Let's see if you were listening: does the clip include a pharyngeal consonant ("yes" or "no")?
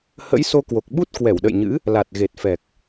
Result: no